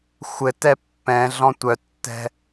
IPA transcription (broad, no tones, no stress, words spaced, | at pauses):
xʷɘtɛ pːɛ̃ɮɔ̃ tʷœtːɛ̤